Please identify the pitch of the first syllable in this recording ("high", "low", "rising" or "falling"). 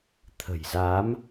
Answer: low